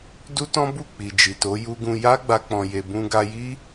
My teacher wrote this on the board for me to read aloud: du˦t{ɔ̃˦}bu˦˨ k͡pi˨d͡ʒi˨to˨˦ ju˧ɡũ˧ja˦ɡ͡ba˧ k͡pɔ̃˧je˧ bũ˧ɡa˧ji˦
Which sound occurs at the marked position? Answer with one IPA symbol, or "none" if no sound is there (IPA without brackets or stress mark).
ɔ̃˦